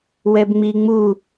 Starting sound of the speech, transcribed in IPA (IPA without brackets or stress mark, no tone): w